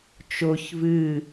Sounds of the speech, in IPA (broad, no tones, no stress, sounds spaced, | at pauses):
t͡ʃ o ç v ɨ